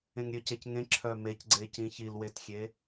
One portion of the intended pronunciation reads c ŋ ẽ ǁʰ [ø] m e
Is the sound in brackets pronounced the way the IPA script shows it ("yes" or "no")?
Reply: no